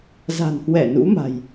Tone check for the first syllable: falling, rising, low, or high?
low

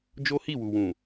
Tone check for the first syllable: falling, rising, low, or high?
high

